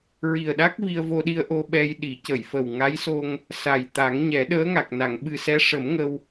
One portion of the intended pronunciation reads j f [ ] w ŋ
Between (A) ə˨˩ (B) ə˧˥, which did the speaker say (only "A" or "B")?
A